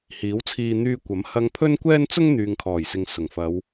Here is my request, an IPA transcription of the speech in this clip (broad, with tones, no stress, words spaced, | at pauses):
hiː˨˥wt͡sʰiː˧ n̪yː˧kʷɐ˨˥m hɐ˧ŋpʰɵ˥n kʷɛː˥nt͡sʊ˥ŋ n̪yː˨ŋkʰɔː˨˩jsɪ˨ŋ sʊ˨˩ŋfɐ˨˧w